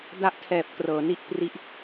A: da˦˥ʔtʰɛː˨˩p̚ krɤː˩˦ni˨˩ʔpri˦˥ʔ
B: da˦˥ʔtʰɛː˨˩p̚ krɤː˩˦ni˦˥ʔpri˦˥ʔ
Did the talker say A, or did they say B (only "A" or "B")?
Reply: B